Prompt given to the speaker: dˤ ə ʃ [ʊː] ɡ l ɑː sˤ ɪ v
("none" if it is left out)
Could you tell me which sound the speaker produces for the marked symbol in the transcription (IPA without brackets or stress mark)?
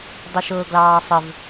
ʊː